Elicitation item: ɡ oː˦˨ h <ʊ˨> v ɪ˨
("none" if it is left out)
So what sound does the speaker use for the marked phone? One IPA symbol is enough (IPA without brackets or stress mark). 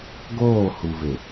u˨